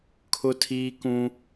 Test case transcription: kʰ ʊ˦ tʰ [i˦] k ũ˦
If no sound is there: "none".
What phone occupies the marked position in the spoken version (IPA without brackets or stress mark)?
iː˦